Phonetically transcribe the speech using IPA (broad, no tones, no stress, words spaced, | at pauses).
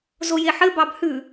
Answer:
zojeħɘ bɑbhʉ